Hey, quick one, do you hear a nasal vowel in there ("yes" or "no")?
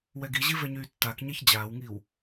no